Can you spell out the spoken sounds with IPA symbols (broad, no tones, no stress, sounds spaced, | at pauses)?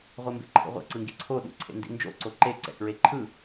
ʁʷ e m b ḛ ǃʰ ḭ ʁʷ ḛ ǀ ɯ ŋ ɡ i ǀʰ o ɗ ṵ ǀʰ ḛ n d ḭ n d͡ʒ o̰ ǀ o ǃ e ǀ ɛ̰ k ɹ e ǃʰ ɯ